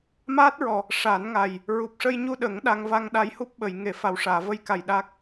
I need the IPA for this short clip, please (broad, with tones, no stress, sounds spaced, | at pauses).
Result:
m aː˦˥ t̚ ɹ ɔ˨˩ | ʂ a˨˩˦ n ŋ a˨˩ j | ɹ u˨˩ p̚ ʂ ə˧ j ɲ u˧ ɗ ə˨˩˦ ŋ ɗ a˧ ŋ v a˧ ŋ ɗ a˧˥ j h u˦˥ p̚ ɓ ə˨˩˨ j ŋ e˨˩˦ f a˨˩ w ʂ aː˨˩˨ v ə˧ j k a˨˩ j ɗ a˦˥ k̚